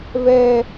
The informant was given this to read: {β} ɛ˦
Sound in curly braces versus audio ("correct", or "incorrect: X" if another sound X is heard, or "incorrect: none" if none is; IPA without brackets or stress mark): correct